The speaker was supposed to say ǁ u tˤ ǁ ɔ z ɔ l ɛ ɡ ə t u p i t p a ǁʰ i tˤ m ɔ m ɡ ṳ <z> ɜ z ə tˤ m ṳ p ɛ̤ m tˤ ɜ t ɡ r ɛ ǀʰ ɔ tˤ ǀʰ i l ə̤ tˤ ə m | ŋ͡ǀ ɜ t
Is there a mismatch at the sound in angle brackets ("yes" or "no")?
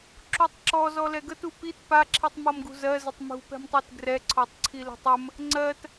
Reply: no